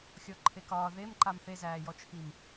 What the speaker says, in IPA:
xʲ ɔ ǃʰ e k ɒː ð e m ǃ a m θ e z æː j ɔ t͡ʃʰ i m

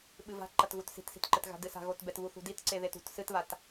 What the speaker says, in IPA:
ɓ ɨ v a̤ ǃ ɐ t ɣ u t s i̤ t s i̤ t ǃ ɘ t ɣ a̤ d ɨ s a̤ ɣ o t b ɛ t β u θ ṳ d i t ǀ e ð e t ṳ t s ɨ t β a t

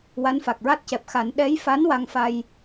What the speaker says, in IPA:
w a˧˥ n f a˨˩ k̚ ɹ a˦˥ t̚ c ɛ˨˩ p̚ x a˨˩˦ n ɗ ɛ˧˥ j f a˧˥ n w a˧ ŋ f a˧ j

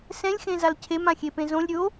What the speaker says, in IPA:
s ɛ̃ lʲ x ẽ z a l cʰ e m ã xʲ e p ẽ z õ lʲ ɾʲ o

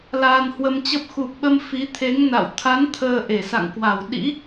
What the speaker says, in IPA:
l aː˧ n h w ə˧ m t͡ɕ ə˦˥ p̚ x u˨˩ p̚ ɓ ə˧ m f i˨˦ t̪ʰ e˨˦ ŋ n a̰˧˨ w t̪ʰ a˨˦ n t̪ʰ əː˧ ʔ e˧˩ s a̰˧˨ ŋ k w a˧˩ w ɗ ḭ˧˥

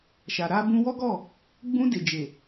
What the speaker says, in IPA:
ʃ a˨ ɾ a˧ b ũ˧ w ɔ˦ ɡ ɔ˦˨ | ɡ͡b ũ˧ d e˨ d͡ʒ e˨

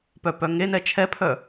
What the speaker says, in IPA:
p œ p œ ŋ e n ɛ t͡ʃʰ ɛ pʰ œ

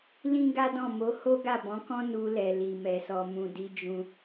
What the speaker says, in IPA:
l ĩ˦ ɡ a˦ d ɔ̃˦˨ m o˨˦ h o˦ ɡ a˦˨ b ɔ̃˨˦ k ɔ̃˦ n u˧ l ɛ˨ l i˨ m ɛ˨ s ɔ˨ m ũ˨ d i˨˦ d͡ʒ ũ˧

